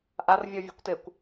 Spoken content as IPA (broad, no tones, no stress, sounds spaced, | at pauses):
ʔ a r vʲ ɔ vʲ o̤ kʷ t e kʷ